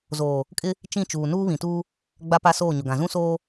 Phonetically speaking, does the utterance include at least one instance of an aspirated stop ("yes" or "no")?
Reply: no